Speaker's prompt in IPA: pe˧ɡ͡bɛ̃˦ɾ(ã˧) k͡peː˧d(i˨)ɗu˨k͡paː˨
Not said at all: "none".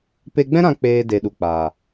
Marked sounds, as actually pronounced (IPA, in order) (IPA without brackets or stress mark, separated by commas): ã˧, e˨